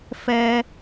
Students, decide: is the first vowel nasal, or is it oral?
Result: oral